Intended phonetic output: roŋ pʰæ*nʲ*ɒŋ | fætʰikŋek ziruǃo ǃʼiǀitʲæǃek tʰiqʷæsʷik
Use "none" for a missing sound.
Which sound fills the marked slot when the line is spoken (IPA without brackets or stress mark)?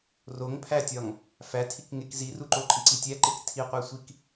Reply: tʲ